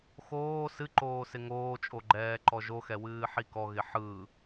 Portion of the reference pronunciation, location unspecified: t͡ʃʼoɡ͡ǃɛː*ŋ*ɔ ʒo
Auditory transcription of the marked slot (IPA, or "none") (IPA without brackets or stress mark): ǃ